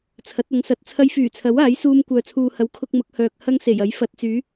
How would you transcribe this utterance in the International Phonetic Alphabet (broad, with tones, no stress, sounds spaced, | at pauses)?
t͡sʰ ɐ˨˥ t̚ ɐ˨˥ ŋ s ɐ˨˥ t̚ t͡sʰ ɐ˧ j f yː˨˩ t͡sʰ ɐ˨˥ w aː˨˥ j s uː˧ m kʷ œː˨ t͡sʰ uː˨ h ɐ˨˥ w kʰ ʊ˧ k̚ m ʊ˨˥ k̚ h œː˨ k̚ h ɐ˥ ŋ s e˨˩ j ɐ˨˥ j f ɐ˨˥ t̚ t͡s yː˨˥